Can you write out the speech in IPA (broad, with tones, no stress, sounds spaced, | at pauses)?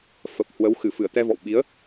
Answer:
f ə˨˩ p̚ h w ə˨˦ w x ɨ˧˩ f ɨ˧˩ ə̯ t̪ ɛ˧ v ɔ̰˧˨ w ɓ i˨˦ ə̯